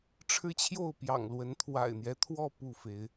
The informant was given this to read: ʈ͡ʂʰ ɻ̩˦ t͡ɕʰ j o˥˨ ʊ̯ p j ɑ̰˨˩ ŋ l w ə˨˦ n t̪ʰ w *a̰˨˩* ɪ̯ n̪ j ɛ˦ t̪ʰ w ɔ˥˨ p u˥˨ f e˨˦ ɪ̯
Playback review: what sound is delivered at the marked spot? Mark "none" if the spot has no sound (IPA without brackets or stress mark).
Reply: a̰˨˩